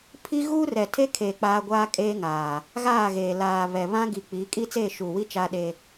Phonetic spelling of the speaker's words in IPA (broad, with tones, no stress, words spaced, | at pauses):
pʰi˦ ɣuː˦rɛ˨tʰe˦kʰeː˨ k͡paː˦ɡʷaː˦kʼeː˦ŋaː˨ | ɣaː˦˨ɣeː˨ laː˨ βɛ˨βã˦ɡi˨ k͡pi˨˦ kʼi˦t͡seː˦˨ʃuː˨wi˦ t͡ʃaː˦ɗe˦